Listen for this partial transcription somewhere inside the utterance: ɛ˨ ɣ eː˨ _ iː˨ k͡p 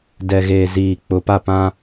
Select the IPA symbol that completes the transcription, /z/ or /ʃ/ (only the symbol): z